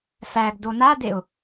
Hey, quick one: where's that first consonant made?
lips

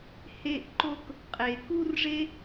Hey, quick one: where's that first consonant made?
throat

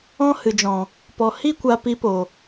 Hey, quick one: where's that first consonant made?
throat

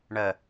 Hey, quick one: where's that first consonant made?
retroflex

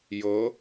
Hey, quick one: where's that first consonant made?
palate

